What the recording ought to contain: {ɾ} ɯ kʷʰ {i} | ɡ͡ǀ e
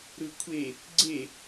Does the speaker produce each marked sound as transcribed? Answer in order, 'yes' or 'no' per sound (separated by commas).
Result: yes, no